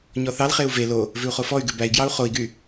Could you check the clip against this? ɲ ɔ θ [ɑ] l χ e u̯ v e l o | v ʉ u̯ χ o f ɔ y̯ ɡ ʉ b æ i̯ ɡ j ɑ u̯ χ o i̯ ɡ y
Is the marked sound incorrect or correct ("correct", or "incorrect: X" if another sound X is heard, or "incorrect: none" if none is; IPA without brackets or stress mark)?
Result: correct